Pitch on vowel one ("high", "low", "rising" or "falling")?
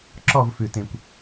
falling